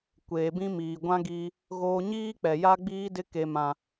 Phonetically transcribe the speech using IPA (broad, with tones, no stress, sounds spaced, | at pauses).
kʷ eː˨ b ĩ˦ m iː˨ ɡʷ ã˦ ɡ iː˦ | ɣ oː˦ ɲ iː˦ k͡p ɛ˨ j a˦ ɡ͡b iː˦ d ɪ˦ k e˦ m ã˦